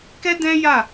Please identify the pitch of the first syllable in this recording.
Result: high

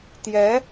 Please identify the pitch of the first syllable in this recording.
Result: rising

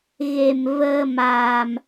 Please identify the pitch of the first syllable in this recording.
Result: low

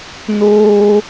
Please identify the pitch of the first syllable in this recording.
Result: high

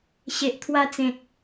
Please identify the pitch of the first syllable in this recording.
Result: low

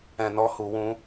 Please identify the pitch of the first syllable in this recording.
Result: low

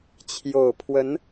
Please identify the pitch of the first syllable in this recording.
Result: low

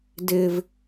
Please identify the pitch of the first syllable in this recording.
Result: low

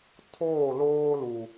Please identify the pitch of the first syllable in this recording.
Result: falling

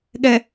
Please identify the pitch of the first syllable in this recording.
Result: low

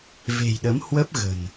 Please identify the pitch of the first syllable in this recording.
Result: low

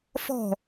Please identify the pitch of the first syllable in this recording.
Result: falling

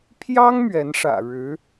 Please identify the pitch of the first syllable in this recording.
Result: high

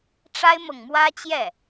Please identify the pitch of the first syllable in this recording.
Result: high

